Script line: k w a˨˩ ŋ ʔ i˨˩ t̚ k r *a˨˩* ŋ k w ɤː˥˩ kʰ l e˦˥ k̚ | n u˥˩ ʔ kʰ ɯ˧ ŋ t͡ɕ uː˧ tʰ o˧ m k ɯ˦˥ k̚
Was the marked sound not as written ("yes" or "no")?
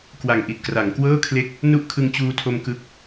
yes